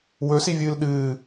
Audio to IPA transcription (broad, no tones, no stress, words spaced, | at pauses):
wɵsivʲɨːl ɗɨː